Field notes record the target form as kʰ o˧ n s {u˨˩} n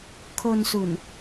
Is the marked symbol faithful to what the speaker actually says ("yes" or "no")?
yes